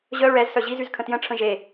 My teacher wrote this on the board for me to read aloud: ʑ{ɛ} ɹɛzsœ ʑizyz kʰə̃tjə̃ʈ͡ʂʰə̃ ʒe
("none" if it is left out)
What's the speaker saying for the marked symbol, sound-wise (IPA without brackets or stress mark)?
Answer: œ